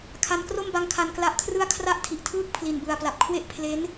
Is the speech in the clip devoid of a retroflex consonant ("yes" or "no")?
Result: yes